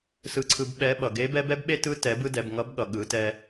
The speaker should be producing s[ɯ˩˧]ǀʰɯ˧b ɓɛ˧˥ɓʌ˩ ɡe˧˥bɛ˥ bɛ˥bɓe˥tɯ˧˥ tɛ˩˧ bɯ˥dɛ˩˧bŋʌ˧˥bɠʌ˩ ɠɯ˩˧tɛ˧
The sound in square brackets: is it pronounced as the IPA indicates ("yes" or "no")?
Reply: no